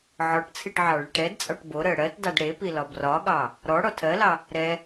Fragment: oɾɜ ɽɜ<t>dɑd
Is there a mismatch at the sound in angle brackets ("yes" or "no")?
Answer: no